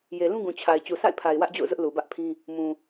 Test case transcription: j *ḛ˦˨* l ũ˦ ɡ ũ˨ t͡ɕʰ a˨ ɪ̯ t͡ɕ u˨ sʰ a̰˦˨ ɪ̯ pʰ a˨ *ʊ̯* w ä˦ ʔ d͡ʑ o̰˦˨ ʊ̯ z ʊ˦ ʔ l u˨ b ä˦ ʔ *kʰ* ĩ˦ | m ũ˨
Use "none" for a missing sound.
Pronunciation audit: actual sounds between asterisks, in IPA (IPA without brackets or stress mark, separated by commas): e˨, ɪ̯, pʰ